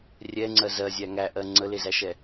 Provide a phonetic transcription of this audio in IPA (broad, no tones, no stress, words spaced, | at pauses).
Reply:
rʲɛŋ͡ǀɜ zɜzʲæ ŋæʔɜ ŋ͡ǀəlezæʃɛ